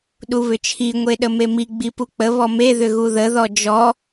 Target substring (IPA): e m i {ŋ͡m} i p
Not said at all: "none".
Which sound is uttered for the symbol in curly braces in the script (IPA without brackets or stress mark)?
ɡ͡b